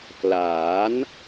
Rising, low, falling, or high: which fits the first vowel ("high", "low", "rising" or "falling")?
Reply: rising